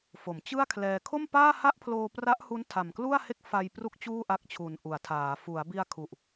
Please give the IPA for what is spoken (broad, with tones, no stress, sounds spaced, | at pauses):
f o˩˦ m t͡ɕ ɯ˥˩ a̯ kʰ l ɛː˧ kʰ o˥˩ m p aː˥˩ h a˥˩ ʔ pʰ l oː˧ p r a˦˥ ʔ h u˦˥ n tʰ a˨˩ m k l u˥˩ a̯ h e˥˩ k̚ f a˧ j p r u˥˩ k̚ t͡ɕ uː˥˩ ʔ a˦˥ k̚ t͡ɕʰ u˨˩ n ʔ u˩˦ a̯ tʰ aː˩˦ f u˩˦ a̯ b i˧ a̯ kʰ u˨˩ ʔ